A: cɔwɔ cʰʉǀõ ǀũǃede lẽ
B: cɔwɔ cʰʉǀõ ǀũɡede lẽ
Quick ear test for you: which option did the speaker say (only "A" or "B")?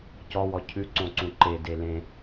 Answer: A